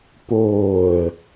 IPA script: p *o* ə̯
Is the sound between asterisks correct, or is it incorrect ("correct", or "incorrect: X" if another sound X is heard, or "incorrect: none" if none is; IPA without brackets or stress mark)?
incorrect: oː